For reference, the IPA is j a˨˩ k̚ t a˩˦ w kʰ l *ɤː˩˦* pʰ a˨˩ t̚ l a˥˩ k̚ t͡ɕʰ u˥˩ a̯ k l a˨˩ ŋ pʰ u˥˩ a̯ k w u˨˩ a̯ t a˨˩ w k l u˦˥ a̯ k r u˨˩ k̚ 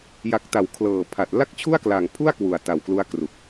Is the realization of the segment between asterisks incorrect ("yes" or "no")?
yes